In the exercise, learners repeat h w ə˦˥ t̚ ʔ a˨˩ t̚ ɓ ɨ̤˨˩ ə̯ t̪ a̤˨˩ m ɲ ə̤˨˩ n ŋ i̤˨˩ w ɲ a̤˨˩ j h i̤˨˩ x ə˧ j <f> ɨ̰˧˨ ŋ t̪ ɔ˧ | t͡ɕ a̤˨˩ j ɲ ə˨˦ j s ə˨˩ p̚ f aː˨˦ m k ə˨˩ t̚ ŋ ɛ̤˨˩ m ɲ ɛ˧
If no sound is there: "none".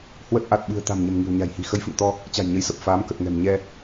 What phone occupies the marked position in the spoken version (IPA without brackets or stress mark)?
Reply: f